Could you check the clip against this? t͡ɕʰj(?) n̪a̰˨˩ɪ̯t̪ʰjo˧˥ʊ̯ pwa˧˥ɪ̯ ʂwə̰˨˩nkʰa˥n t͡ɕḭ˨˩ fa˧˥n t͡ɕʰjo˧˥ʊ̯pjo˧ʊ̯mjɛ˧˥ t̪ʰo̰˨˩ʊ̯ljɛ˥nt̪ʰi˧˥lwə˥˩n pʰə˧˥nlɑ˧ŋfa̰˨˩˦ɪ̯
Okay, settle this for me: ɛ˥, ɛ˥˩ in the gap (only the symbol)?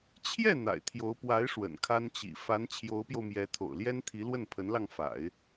ɛ˥˩